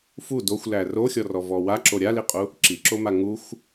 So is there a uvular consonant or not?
yes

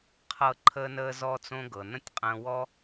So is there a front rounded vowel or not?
no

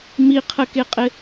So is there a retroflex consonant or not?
no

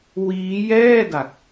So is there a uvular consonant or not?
no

